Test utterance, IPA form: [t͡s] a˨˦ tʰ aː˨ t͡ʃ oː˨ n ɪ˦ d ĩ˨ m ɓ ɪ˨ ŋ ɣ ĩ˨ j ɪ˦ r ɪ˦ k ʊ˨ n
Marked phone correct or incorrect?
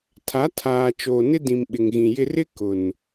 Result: incorrect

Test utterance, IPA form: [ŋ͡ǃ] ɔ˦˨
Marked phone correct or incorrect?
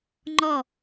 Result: correct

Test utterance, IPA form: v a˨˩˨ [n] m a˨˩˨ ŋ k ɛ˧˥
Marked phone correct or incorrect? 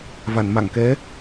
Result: correct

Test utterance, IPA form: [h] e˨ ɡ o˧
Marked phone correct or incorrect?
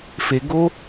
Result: incorrect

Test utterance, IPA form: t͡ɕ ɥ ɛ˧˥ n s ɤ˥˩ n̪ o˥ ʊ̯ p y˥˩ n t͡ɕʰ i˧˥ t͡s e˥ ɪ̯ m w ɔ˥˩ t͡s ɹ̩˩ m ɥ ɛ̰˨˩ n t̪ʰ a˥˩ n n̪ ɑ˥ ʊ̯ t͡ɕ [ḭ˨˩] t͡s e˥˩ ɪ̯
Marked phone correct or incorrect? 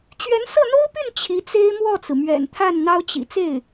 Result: correct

